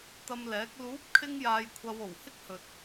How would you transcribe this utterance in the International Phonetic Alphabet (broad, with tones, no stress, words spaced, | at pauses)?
t̪ɐ˧mlɛː˨˥k̚ luː˨˥p̚kʰɪ˧ŋ jaː˧jkʷʰɐ˧w o˨˩whɪ˥k̚hɵ˨t̚